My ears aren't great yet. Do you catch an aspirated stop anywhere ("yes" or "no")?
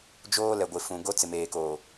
no